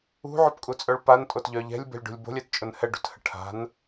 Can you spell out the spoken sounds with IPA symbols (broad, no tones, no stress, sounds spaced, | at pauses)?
ṳ ʕ o p kʼ u t͡sʼ œ ɭ p a n tʼ o t ʎ œ ʎ ɛ̤ lʲ b ɛ̤ lʲ ɖ ṳ lʲ b o̤ lʲ ɛ t t͡ʃʼ ʊ n h ɛ ɖ ṳ t h ə ʈʰ a̤ n